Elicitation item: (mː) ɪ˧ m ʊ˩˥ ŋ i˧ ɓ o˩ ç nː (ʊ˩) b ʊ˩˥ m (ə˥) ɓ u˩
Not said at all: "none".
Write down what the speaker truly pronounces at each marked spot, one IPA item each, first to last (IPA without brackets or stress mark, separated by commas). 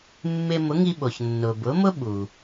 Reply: mː, ʊ˩, ʊ˥